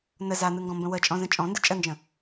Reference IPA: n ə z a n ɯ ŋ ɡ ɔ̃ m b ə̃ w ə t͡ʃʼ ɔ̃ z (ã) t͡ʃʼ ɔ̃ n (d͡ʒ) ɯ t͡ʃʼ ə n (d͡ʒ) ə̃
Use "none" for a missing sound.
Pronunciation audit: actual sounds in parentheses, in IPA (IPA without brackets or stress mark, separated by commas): ə̃, d, d͡ʒ